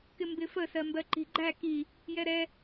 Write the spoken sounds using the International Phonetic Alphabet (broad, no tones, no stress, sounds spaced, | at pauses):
k ɪ m b ɪ f ə s ɜ m b ɜ ǃ i̤ ɡ͡ǃ æ k i | j ɛ ɾ ɛ